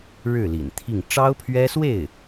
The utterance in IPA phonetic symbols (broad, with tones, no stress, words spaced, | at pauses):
ɻɻ̩˥˩lḭ˨˩n t̪ʰi˥˩ŋ ʈ͡ʂɑ˥ʊ̯pʰɥɛ˥swe˥˩ɪ̯